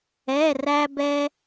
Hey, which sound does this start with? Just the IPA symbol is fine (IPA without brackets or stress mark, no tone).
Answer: ɛ